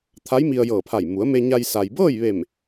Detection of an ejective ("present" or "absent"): absent